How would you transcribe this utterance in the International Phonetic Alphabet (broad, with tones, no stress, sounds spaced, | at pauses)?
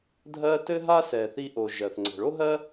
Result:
dʱ ɜ˧ t ɘ˧ ɦ a˧ s ɛ˩ θ i˧ ʔ o˩ ʒ ɜ˩ θ ŋ͡ǀ ɛ̤˩ ɭ o˥ ɦ ɜ˥